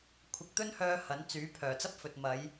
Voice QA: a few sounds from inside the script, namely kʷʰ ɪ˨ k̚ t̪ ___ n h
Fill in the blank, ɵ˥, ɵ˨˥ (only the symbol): ɵ˥